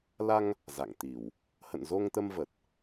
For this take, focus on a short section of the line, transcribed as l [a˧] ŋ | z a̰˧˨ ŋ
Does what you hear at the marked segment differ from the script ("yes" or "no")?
no